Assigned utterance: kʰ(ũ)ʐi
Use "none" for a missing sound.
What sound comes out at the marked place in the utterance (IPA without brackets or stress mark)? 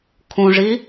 ũ